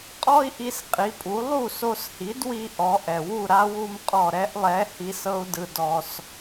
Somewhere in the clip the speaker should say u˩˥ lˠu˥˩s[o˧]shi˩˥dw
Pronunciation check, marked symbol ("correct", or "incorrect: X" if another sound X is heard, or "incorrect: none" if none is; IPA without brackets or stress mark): correct